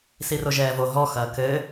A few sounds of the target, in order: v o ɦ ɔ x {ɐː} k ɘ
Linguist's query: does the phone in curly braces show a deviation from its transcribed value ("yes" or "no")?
no